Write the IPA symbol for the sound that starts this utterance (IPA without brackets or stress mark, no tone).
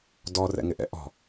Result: d